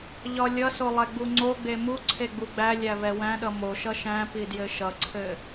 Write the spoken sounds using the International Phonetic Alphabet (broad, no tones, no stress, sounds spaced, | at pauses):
ʎ ɒ lʲ ʌ s o lˠ ɛ ɡ͡b u ŋ͡ǀ o ɡ͡b e m u ǀʰ e ɡ͡b u ɡ͡b æ lʲ æ v ɛ w æ̃ ɗ ʌ m o ʃ ʌ ʃ æ̃ p i d j ɘ ʃ ʌ ǀʰ ɘ